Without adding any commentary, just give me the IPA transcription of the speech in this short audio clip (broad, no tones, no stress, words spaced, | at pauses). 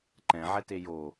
ǃɛ̃ʕɛte jo